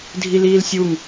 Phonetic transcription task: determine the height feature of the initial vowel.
high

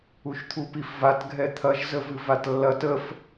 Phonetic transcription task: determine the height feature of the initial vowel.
high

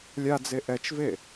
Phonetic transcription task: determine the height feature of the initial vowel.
low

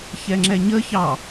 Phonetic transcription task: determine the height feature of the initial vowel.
mid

